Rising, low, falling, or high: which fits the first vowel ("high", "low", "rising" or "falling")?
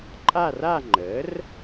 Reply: falling